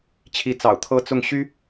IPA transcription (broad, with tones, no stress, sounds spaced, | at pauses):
t͡ɕʰ i˧˥ t͡s ɑ̰˨˩ ʊ̯ t̪ʰ ɤ˥ t͡s ʊ˥˩ ŋ ɕ y˥